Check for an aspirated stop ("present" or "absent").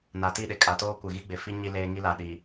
absent